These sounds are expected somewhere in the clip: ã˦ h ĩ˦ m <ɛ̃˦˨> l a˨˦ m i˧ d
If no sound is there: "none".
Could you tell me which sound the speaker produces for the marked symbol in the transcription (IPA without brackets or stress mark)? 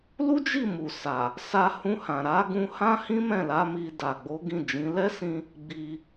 ɛ̃˦˨